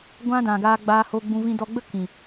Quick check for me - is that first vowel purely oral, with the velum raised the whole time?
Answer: no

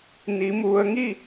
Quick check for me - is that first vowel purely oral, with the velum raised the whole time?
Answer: yes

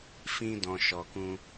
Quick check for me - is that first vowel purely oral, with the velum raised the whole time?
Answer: no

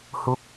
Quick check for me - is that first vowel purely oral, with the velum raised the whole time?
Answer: yes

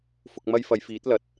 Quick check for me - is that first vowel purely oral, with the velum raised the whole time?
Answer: yes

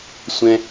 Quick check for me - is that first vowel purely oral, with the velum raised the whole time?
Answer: no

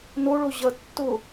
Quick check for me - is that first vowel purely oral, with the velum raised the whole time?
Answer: yes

